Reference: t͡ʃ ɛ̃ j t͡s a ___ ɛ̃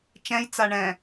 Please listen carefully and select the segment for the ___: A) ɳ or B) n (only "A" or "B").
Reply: A